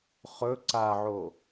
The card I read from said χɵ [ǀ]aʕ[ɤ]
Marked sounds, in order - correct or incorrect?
correct, incorrect: o

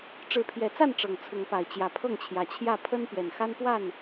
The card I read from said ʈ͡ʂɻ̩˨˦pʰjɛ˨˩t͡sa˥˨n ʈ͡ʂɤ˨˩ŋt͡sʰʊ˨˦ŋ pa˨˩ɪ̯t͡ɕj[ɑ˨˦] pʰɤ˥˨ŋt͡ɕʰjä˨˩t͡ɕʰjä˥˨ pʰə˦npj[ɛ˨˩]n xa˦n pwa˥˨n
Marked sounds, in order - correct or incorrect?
incorrect: ä˨˦, correct

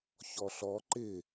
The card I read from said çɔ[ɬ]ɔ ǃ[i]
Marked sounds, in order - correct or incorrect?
correct, incorrect: ɪ

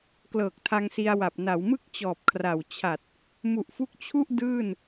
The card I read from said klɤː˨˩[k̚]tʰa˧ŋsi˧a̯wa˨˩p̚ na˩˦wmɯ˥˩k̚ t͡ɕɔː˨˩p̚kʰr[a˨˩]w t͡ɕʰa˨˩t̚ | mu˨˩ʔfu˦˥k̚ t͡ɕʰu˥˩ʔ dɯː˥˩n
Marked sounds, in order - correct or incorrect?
correct, correct

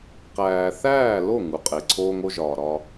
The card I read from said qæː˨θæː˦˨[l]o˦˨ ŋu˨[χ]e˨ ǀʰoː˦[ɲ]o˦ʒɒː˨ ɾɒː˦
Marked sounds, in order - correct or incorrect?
correct, incorrect: qʼ, incorrect: ŋ

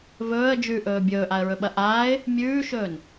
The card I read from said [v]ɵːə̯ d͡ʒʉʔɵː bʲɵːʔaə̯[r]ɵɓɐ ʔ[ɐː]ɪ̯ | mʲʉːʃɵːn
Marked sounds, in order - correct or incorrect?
correct, incorrect: ɹ, incorrect: aː

